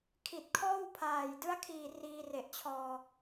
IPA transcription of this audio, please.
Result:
kʰ i˨˩ t̚ kʰ ɔː˥˩ w pʰ aː˨˩ j d ɯ˦˥ a̯ kʰ iː˨˩ r iː˧ r e˨˩ ʔ t͡ɕʰ ɔː˧

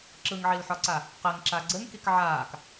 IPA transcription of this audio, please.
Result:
ǁ ɯ ŋ ʕ i l ħ ɒ ǀ a | q ɘ ŋ ǁ a ɡ͡ǀ ɘ ŋ k i k ʕ aː k

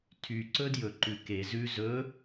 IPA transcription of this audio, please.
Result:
tʰ y ǀ ɵ d j ɵ ǃ ʉ k e z ʉ z ɵ

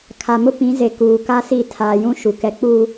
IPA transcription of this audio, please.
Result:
kʰ a˨ m ʊ˦ p ĩ˨˦ z e˨ k uː˨ k a˦ s i˦˨ tʰ aː˨ j ũ˦ ʃ u˨ k ɛ˨˦ k͡p u˦

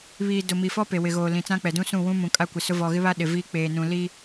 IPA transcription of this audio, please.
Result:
β iː˨ d ʊ˨ m i˨ f ɔ˦ p e˨ w ɪ˨ ɣ oː˨ l ĩ˨ t͡s ã˦ k͡p ɛ˨ d ũ˦ s ũ˦˨ w ũ˦ m ũ˨ kʼ a˦ kʷ ɪ˨ s ʊ˦ v ɔ˨ ɣ ɪ˦ β a˦ ɗ ɪ˨ v iː˦ k͡p eː˨ n ũ˨ l i˦

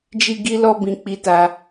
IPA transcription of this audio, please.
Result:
d͡ʒ i˦ ɡ i˦ l ɔ˦ b ĩ˧ k͡p i˧ t a˧

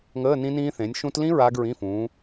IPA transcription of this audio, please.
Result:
ŋ əː˧˥˧ n ĩ˦˥ n ĩː˦˥ θ ẽ˨˦ nʲ ʃ ũ˦˥ t l ĩ˦˥ ɹ aː˦˥ ɡ ɹ ĩ˧˥˧ f ũ˨˦

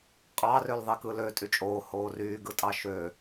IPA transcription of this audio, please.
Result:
qʼ ɑ r ø l ðˤ i k ɯ l ø tʼ y t͡ʃʼ oː h oː r yː ɡ ɯ tʼ ɑ ʃ ø

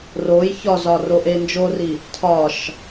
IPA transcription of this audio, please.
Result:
r o j ç ɒ z ɒ r o ʔ e n d͡ʒ o r i | tʰ ɒ ʃ

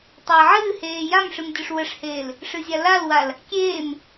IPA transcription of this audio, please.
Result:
tˤ əː ʕ ɨː h eː j a m ʂ ɨ m dʲ ʊ ʂ w ə ʂ h eː l | ʂ ɨ zʲ a l a l w a l | kʲ eː m

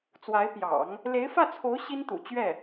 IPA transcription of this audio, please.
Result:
t͡s w a˧˥ ɪ̯ p j ɑ̰˨˩˦ ŋ | l e˧˥ ɪ̯ f ä˥˩ t͡sʰ o˧˥ ʊ̯ ɕ i˥ n t̪ ṵ˨˩ t͡ɕ ɥ ɛ˥˩

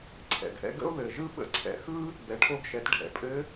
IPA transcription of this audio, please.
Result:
ǀʰ ɛ̰˩ ɡ ʔ ɛ̰˧ ɡ ə̰˥ o̯ ð ɘ˩ ʒ ɯ˥ ɓ ə̰˧ ǀʰ ɛ̰˩ x ɯ˥ | b ɛ˩˧ ʈʰ o˧ ɡ ʃ ɛ˩˧ t ɖʱ ɛ̰˩˧ pʼ ɘ˧˥

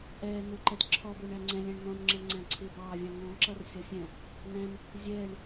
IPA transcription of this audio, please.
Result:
ʔ ɛː n ʊː ǃ ɛ t ǁʰ ɔ b ʊː ɳ æ ŋ͡ǀ ɛ̃ lʲ æ̃ ɳ n̪ ɔ̃ n ŋ͡ǁ ə ɳ ŋ͡ǀ æ̃ ǀʰ ɪː b ɑː vʲ ɑ̃ ŋ ɔ̃ ǁ ʌ r sʲ ɒ sʲ ɛ̃ | n̪ æ̃ n | zʲ ɛː ɳ

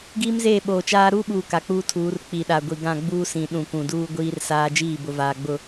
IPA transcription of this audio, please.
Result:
ɡ iː˦ m z eː˦˨ ɓ oː˨ t͡ʃ aː˦ ɾ uː˦ ɓ uː˨ k a˨ k͡p uː˦ tʰ uː˨˦ r k͡p i˨ ɗ a˨ ɡʷ i˨ ɡ ã˦˨ ɡ͡b uː˦ s ĩ˨ ɗ ũ˨ k ũ˨ d uː˦ ɡʷ iː˦ r s aː˦ d͡ʒ iː˦˨ b ʊ˨ v aː˨ ɡ͡b ʊ˨

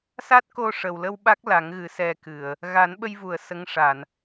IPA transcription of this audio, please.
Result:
s a˦˥ t̚ k o˧ ʂ ə˨˩ w l ə˧ w ɓ a˦˥ k̚ l a˨˩˦ ŋ ɣ ɨ˨˩˦ s ɛ˧ k ɨ˨˩˨ ə̯ | ɣ a˨˩˦ n ɓ ə˧ j v u˨˩˨ ə̯ s ə˧˥ ŋ ʂ a˨˩˨ n

